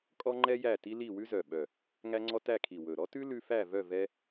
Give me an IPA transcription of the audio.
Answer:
kʼ ɔ˦ ŋ͡ǃ ɛ˦ j æ˦˨ t i˦ l i˦˨ w ʉ˦ z œ˨˩ ɓ œ˨˩ | ŋ æ˦ ŋ͡ǀ ɔ˦ t æ˦˨ kʰ i˨˩ w ɵ˨˩ ɾ ɔ˦ t ʉ˦ l ʉ˦ f æ˦˨ v œ˦˨ v ɛ˦

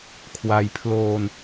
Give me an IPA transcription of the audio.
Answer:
kʰ w a˧ j pʰ l oː˧ n

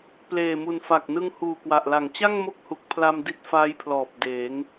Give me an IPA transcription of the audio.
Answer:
p l eː˨˩ m u˨˩ n f a˨˩ k̚ n ɯ˧ ŋ h uː˨˩ k w a˨˩ ʔ l a˨˩ ŋ t͡ɕ a˥˩ ŋ m o˦˥ k̚ h u˨˩ k̚ pʰ l a˧ m d i˦˥ t̚ f aː˦˥ j pʰ l ɔː˨˩ p̚ d eː˩˦ ŋ

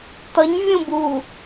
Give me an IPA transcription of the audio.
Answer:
t̪ ʌ ɲ vʲ ũ b u

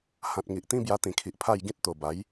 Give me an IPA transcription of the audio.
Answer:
h ã˨ t̚ ŋ i˨ ʔ t̪ ĩ˦ b j a˧ t̪ ĩ˨˩ kʰ i˨ ʔ pʰ a˥˧ j ɡ ĩ˦ t̚ t̪ o˨˩ b a˨˦ j

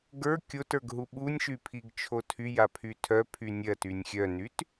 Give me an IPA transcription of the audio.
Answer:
ɡ ə˞ kʲ o t ə˞ ɡ ɦ u ɓ u nʲ ʃ y pʰ i ɡ t͡ʃʰ o tʰ y j a pʰ y tʰ œ pʰ y nʲ ɜ t y nʲ xʲ œ n y t

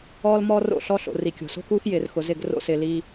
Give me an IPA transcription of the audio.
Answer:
ɔː˦ l m ɔ˦ r o̰˦˨ ɬ ɔ˦ ɬ o̰˨ r i˨ kʲ o̤˨ s o̤˦ k uː˦ x j ɪː˨ r x ʊ˨ z ɪ˦˨ ɡ r o̰˦ s ɪː˨ l i˦

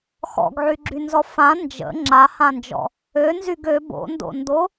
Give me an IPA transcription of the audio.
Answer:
x ɔ̰ ɡ ʕ y ɡ͡ǁ y n z ɔ f ã n d͡ʒ ə̰ ŋ͡ǁ a h ã n d͡ʒ ɔ̰ | ø n z y ɡ ø b o̰ n d o̰ n d o

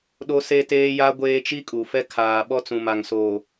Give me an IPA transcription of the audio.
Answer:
ɗ o˦ s e˦ t eː˦ j a˦ ɡʷ eː˦ t͡ʃ i˦ kʼ u˨ f ɛ˦ kʰ aː˨ ɓ ɔ˦ t͡s ũ˨ m a˨ ŋ s oː˨

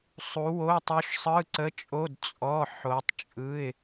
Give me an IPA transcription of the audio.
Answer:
sˤ u˩˧ w o˩˧˩ tˤ u˩˧ ʃ sˤ ɯ˩˧˩ ǀ ə˩˧˩ t͡ʃʼ o˩˧˩ d t͡sʼ ɔ˩˧˩ ħ o˩˧ tˤ t͡ʃʼ ɯ˩˧˩ ɪ̯

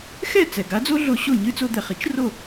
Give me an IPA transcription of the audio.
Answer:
x ɛ˥˩ t͡s ɛ˩ ɡ a˩˥ d͡z o˥ ɮ o˧ ɕ o˥˩ ɲ ɨ˥ t͡s o˧ d̪ ɛ˩ χ i˩˥ t͡ʃ r o˥˩

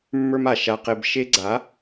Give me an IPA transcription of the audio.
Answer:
mː ə˞˧ m a˨ ʃ a˧ q e˧ b ʃ e˦ ɡ͡ǀ a˨˦

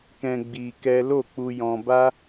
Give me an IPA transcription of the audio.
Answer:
k ɛ̃˧ ɡ͡b i˧ k ɛ˦ l o˦˨ k͡p u˧ j ɔ̃˧ b a˦

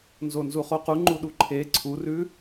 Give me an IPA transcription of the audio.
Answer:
n z o n z u χ o q u ŋ͡ǃ u ɗ u ǃʰ e ǀʰ u r ʉ

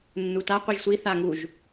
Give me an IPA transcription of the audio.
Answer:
nː u t a qʷ i ʒ sʷ i θ a ŋ u ʒ

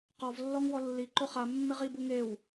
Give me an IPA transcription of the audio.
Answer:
q ɔ v lː ɔ ŋ w ɔ lː i ǃ o χ a mː ɪ ʁ i b u ŋ e w

